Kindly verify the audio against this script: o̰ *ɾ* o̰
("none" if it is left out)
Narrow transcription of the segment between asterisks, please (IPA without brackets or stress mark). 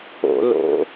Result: l